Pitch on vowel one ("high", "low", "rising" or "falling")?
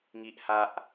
high